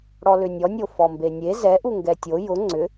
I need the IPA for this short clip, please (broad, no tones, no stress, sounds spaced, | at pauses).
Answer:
ɽ ɔ l ʏ nʲ ɔ nʲ o f ɔ m b e nʲ e z ɛ ʔ u ŋ ɡ ɛ tʲ o j ʊ ŋ͡ǀ ʏ